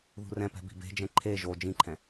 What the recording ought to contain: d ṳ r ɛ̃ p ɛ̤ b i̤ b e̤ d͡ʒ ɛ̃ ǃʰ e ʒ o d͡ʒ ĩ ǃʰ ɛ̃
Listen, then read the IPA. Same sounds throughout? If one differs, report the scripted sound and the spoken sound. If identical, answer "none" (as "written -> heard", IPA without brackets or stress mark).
d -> ð